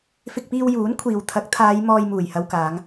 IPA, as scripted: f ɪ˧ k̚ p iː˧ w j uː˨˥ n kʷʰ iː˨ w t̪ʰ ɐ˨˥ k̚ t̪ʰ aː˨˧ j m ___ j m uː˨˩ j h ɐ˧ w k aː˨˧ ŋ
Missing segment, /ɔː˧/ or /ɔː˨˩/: ɔː˧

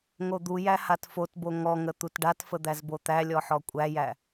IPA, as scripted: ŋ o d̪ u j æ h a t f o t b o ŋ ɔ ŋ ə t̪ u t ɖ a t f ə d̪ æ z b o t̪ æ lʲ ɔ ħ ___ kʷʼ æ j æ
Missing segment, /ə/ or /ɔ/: ɔ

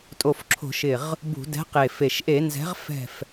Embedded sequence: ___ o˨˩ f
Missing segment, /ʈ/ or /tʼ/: tʼ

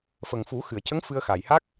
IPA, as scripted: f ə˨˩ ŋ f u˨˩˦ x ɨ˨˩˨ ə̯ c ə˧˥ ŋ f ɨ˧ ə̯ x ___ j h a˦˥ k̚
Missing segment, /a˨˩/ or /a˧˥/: a˨˩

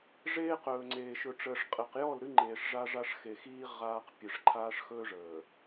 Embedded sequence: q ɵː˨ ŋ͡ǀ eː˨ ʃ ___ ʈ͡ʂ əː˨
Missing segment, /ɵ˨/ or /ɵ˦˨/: ɵ˨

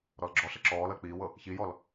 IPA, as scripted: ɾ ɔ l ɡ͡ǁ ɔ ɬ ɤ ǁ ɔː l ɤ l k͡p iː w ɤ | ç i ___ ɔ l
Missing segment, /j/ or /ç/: j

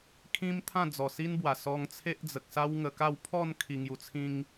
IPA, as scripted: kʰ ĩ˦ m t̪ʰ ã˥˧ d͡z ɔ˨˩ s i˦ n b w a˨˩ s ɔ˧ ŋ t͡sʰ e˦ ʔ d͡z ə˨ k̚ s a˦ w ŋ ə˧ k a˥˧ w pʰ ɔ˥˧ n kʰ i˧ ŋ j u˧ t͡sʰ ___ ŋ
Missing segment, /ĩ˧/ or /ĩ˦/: ĩ˦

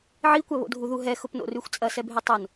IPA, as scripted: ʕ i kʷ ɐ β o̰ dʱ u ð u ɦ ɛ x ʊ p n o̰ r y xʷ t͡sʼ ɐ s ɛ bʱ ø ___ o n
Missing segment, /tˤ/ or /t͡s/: tˤ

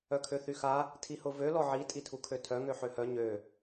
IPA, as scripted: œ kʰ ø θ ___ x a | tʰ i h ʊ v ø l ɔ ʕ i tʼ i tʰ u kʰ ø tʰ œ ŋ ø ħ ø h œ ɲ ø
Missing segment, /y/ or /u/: y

